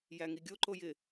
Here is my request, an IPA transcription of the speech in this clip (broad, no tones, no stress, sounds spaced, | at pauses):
j æ ŋ i ɡʲ o ǃ o j ɪ